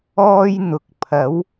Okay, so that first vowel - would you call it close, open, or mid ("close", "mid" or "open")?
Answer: mid